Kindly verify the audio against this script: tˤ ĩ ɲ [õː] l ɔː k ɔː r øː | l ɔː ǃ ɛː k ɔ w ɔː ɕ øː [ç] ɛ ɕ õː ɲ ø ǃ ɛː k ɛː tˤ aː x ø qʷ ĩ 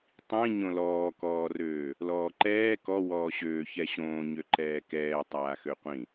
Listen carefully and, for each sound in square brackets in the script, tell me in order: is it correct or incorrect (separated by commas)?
incorrect, correct